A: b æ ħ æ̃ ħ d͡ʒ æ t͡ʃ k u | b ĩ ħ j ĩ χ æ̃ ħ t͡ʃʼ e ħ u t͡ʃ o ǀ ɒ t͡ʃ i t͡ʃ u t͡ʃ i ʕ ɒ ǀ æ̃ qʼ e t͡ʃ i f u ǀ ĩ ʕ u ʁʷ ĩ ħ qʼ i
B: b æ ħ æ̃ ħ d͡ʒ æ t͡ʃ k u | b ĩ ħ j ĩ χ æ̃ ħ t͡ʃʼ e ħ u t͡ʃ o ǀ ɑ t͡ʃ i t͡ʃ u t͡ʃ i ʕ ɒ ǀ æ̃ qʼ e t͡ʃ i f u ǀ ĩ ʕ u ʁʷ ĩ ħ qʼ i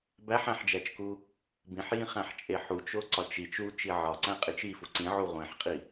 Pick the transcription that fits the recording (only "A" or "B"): A